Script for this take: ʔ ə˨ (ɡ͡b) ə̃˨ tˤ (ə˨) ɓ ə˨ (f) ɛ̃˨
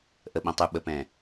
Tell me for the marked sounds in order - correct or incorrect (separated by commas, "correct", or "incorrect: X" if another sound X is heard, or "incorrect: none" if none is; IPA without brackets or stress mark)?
incorrect: ɓ, incorrect: ʉ˨, incorrect: p